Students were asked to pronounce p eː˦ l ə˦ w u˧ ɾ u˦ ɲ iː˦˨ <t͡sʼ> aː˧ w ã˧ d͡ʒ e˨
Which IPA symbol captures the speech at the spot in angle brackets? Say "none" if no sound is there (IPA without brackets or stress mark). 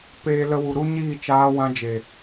t͡ʃ